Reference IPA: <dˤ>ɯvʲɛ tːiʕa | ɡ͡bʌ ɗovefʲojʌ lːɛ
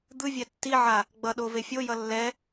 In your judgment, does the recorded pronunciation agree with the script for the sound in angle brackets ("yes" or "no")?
no